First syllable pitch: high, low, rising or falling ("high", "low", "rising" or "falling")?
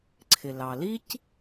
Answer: low